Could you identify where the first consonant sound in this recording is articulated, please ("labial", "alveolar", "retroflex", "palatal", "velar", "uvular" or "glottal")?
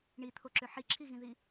retroflex